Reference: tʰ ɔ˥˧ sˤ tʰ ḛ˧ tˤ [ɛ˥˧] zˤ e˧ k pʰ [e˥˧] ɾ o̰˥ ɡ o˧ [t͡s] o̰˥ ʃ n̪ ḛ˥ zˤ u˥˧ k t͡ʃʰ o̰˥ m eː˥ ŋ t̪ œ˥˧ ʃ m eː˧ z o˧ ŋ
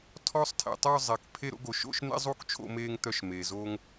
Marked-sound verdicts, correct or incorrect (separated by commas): incorrect, correct, incorrect